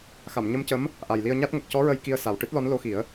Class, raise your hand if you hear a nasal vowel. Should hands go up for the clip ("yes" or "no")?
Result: no